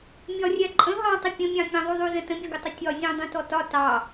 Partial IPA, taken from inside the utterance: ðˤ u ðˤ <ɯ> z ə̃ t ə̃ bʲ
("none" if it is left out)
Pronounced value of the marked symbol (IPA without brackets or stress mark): u